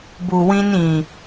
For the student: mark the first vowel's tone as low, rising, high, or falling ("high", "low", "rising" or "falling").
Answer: low